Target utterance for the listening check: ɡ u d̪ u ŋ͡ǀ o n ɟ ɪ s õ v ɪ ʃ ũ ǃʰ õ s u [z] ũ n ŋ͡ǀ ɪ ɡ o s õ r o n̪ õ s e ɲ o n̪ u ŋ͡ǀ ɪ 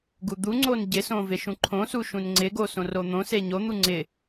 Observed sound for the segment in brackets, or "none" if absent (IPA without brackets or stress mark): ʃ